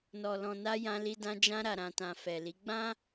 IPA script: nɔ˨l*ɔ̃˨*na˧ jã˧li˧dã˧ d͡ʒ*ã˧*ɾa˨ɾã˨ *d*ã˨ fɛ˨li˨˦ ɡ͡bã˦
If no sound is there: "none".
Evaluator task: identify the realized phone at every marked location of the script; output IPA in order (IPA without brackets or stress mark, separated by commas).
ɔ̃˨, ã˧, t